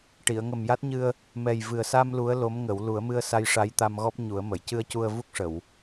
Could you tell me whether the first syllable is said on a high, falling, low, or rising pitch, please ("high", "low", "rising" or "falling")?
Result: low